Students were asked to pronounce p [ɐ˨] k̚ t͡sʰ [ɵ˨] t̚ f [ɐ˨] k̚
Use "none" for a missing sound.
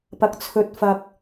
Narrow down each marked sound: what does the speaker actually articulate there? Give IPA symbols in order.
ɐ˨, ɵ˨, ɐ˨

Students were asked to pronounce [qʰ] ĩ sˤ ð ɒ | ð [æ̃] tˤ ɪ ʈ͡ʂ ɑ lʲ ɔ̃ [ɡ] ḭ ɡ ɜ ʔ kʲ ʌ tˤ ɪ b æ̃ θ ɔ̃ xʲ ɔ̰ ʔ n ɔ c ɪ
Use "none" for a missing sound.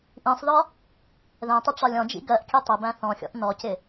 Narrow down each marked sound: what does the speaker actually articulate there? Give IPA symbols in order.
ʔ, ɛ̃, d͡ʒ

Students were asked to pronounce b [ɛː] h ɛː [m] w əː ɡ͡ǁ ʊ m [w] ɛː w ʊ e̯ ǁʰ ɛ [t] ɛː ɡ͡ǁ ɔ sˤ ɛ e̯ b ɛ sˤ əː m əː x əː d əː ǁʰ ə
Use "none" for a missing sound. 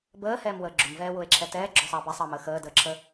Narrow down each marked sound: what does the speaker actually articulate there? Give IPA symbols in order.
əː, m, v, t

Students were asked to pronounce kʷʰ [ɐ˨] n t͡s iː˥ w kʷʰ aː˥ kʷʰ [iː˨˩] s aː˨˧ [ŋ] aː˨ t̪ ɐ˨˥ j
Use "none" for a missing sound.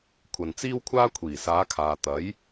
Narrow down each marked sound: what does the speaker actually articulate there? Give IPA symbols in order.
ɐ˨, iː˨˩, kʰ

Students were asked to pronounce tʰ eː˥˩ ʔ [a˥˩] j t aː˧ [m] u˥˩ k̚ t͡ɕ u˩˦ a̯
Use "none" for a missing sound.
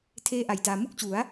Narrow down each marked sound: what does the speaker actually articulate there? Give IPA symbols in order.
a˨˩, m

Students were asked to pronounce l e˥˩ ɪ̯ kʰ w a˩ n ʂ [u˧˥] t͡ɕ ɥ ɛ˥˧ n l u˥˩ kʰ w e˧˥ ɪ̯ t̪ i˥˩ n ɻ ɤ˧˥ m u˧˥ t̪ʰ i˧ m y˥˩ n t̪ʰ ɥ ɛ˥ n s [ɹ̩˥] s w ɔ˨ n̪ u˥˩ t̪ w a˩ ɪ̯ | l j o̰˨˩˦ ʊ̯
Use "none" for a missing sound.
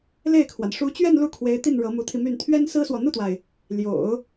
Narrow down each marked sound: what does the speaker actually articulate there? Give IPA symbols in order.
u˧˥, ɹ̩˥

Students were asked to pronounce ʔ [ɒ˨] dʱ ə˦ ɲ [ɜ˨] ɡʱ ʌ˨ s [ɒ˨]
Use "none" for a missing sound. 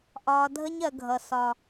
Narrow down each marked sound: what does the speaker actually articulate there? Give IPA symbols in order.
ɒː˨, ɜ˨, ɒ˨

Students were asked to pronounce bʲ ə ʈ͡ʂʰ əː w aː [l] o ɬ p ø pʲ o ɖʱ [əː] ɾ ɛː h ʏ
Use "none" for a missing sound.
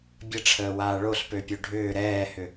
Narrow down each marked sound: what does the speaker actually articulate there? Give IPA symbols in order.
ɭ, ʏː

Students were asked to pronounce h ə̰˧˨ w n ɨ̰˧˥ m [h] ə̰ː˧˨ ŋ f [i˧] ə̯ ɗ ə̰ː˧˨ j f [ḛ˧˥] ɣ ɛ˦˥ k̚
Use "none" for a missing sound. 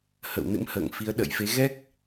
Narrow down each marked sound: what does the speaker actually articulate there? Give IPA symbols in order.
h, i˨˦, e˨˦

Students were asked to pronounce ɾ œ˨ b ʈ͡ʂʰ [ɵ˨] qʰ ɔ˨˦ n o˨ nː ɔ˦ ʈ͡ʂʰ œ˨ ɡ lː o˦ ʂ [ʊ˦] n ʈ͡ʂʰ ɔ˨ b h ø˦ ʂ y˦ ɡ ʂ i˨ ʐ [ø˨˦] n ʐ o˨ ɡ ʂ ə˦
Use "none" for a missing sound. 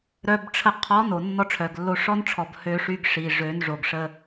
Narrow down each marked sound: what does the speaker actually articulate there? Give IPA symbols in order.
ə˨, ɔ˦, ø˨˦

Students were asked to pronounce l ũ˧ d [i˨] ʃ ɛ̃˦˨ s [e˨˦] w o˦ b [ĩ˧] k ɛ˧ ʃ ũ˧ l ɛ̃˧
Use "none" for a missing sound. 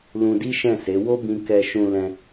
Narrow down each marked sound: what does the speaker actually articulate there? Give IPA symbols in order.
i˦, e˨˦, ĩ˧

